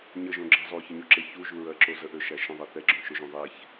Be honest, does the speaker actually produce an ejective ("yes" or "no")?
no